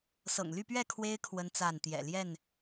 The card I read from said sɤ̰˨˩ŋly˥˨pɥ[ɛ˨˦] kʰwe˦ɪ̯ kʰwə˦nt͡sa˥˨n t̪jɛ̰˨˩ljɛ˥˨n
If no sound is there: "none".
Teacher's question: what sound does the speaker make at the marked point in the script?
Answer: ɛ˥˨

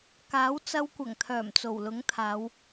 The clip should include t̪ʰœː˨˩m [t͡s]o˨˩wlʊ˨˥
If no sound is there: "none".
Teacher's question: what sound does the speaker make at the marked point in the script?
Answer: t͡s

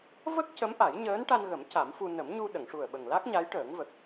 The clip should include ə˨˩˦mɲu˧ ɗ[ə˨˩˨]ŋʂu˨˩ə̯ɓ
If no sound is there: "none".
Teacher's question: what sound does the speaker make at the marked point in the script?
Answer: ə˨˩˨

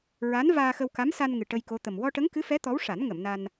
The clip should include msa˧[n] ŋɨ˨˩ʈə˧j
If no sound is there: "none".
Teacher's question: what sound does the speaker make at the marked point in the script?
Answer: n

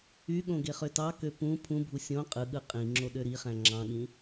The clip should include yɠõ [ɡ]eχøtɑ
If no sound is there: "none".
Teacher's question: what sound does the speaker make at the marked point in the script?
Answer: ɡ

